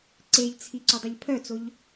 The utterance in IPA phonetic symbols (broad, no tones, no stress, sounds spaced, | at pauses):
ǀ e ʎ t͡sʰ i ǀ o dˤ ɘ ʎ pʰ œ t͡s o ʎ